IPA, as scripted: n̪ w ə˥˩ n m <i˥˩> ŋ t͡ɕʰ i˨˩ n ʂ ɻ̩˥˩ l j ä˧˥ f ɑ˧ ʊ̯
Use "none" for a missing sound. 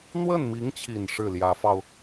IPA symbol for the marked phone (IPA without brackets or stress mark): i˧˥